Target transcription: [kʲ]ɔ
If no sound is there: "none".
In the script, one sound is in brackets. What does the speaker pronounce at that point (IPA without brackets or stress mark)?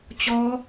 t͡ɕ